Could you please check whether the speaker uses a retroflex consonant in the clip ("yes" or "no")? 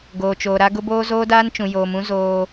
no